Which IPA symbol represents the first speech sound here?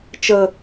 t͡ʃ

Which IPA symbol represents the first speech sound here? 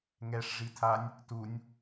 ŋ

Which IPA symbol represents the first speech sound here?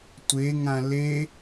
tʷ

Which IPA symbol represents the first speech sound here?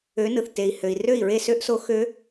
ø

